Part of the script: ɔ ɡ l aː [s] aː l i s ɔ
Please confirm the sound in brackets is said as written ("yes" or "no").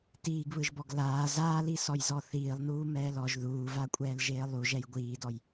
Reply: no